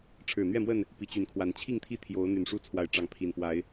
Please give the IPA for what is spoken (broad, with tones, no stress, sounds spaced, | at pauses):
ʈ͡ʂʰ ɻ̩˨˩ n̪ ɥ ɛ˥˨ m w ə˥˨ n | p i˨˩ t͡ɕ y˨˦ n kʰ w a˨˩ n t͡ɕʰ i˥˨ ŋ t̪ʰ i˥˨ t̪ʰ j o˨˦ ʊ̯ n̪ y˨˩ n ʂ u˥˨ t͡sʰ w a˨˦ ɪ̯ ʈ͡ʂ ɑ˨˦ ŋ pʰ i˨˩ n f w a˨˦ ɪ̯